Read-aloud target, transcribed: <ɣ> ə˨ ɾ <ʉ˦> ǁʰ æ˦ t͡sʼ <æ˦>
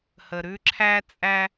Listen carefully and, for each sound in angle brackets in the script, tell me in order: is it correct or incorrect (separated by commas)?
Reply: incorrect, correct, correct